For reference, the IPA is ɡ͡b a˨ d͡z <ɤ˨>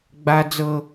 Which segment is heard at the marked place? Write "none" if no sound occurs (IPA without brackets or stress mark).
ɤ˨